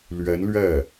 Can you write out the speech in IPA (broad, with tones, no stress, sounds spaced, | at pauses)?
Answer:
l ɥ ɛ˧˥ n l ɥ ɛ˥˩